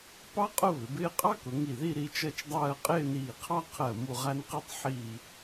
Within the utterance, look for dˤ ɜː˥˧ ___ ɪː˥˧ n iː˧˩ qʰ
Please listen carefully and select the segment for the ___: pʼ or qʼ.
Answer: qʼ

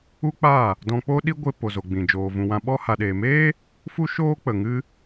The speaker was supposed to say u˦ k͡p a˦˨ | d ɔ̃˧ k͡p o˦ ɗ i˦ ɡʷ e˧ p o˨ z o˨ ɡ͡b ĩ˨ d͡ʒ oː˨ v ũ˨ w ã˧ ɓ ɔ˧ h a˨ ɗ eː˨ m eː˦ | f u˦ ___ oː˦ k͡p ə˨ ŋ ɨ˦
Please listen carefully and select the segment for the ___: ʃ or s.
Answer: ʃ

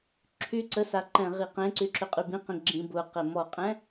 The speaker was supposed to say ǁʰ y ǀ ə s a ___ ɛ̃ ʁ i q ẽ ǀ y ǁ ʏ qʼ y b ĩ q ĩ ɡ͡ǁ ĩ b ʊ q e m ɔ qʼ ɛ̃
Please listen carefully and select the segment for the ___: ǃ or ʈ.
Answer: ǃ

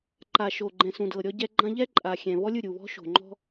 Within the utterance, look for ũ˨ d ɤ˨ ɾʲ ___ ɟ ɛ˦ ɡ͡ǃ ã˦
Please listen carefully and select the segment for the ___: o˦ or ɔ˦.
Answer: ɔ˦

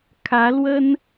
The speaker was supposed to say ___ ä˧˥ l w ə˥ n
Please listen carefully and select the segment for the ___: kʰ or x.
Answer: kʰ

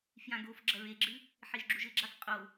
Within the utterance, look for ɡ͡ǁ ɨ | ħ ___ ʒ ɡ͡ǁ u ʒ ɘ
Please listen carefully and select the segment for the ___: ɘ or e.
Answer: e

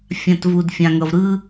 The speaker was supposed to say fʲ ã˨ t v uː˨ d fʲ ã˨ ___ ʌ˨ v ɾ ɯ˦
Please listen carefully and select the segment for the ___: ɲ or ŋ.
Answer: ŋ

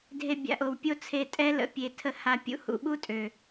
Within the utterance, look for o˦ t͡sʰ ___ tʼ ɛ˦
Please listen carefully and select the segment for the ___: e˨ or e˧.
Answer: e˧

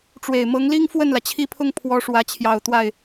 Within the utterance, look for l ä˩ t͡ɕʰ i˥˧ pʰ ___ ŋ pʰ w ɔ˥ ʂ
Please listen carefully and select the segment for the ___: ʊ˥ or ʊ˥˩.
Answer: ʊ˥˩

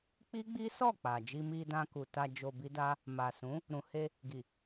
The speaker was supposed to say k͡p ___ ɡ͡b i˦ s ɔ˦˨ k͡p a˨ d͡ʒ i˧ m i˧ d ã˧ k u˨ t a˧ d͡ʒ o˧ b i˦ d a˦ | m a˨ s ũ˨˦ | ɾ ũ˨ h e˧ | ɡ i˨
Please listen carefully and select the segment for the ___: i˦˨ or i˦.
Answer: i˦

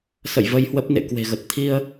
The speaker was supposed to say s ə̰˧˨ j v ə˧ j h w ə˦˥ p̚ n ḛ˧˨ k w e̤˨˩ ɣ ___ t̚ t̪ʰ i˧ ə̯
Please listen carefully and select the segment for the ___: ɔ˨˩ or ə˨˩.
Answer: ə˨˩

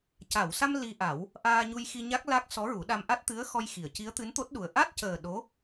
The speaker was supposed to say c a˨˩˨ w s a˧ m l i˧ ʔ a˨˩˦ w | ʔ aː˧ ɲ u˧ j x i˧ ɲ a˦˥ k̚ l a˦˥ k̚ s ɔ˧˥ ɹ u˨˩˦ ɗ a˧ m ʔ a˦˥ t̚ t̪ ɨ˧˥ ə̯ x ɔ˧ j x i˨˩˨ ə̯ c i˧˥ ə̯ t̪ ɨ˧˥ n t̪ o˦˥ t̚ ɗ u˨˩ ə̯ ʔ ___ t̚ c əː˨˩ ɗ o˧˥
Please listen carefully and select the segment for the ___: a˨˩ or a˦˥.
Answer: a˦˥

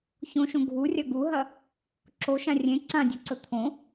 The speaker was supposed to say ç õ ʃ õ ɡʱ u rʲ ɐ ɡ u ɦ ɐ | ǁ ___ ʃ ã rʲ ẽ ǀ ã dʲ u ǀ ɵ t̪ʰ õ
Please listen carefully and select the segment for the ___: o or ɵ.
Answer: o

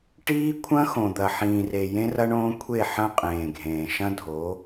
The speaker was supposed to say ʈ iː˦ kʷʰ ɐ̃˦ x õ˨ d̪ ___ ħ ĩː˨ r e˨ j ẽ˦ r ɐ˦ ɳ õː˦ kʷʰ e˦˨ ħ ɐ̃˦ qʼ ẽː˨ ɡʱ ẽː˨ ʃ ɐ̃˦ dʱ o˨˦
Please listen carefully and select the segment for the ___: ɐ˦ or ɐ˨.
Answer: ɐ˨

